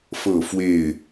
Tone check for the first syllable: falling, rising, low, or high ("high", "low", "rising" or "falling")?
falling